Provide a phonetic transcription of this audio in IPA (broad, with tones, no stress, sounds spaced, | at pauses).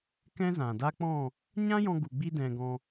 k ɛ̃˦ z ã˨ d a˦ k͡p ɔ̃˦˨ | ɲ ã˦ j ɔ̃˧ ɡ u˨ ɡ͡b i˧ d ɛ̃˧ ɡ ɔ̃˧